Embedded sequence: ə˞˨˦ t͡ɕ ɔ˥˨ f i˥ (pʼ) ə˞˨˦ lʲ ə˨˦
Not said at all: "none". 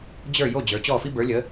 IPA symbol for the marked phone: b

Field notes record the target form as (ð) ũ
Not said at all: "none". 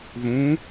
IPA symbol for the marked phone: ð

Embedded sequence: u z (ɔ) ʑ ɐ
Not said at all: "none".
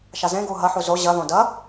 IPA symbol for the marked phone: o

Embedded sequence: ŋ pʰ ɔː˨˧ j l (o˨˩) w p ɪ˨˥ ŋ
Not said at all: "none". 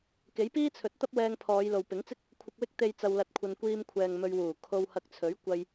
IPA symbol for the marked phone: o˨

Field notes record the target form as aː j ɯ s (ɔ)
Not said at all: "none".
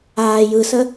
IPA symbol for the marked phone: ə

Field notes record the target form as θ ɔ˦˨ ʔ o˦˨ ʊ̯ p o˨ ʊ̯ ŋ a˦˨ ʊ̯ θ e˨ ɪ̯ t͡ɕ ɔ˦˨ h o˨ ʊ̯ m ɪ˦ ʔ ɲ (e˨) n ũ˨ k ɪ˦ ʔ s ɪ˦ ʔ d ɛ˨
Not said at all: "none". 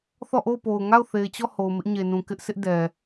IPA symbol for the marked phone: e˨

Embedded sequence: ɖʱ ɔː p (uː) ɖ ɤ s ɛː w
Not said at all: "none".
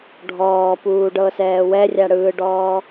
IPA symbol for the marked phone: uː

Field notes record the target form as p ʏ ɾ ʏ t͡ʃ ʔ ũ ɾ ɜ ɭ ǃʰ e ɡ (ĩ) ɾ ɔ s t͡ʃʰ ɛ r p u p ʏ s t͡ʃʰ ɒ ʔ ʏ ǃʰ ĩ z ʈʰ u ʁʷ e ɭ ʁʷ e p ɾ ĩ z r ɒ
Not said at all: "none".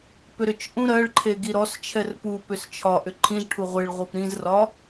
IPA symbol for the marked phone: i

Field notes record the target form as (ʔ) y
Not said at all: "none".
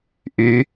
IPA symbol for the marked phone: ʔ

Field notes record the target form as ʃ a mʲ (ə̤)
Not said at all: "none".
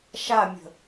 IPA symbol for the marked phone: ə̤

